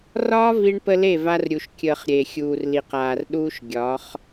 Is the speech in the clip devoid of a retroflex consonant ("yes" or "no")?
no